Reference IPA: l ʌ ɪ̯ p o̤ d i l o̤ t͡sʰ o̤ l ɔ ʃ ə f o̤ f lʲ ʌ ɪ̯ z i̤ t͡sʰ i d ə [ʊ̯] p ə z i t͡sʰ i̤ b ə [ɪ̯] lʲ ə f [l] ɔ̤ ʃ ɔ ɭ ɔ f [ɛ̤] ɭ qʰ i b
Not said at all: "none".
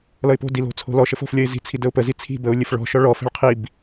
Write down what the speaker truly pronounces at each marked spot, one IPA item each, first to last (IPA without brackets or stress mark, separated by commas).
ʊ̯, ʊ̯, ɭ, ɛ̤